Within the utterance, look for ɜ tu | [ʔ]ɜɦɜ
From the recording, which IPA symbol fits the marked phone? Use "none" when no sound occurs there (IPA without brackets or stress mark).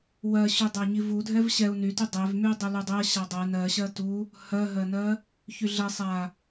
h